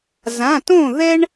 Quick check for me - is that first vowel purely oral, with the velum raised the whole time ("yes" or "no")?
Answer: no